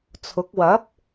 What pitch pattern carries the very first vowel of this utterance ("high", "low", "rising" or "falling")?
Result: rising